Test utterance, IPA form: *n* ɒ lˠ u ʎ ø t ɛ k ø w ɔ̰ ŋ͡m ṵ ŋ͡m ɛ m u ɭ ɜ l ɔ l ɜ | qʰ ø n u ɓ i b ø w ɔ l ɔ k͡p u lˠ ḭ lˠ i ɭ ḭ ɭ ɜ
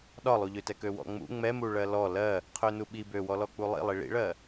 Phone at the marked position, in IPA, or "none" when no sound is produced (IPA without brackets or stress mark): ɗ